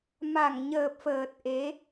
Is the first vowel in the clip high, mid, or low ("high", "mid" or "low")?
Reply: low